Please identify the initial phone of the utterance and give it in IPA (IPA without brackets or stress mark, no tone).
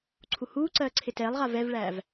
ǀʰ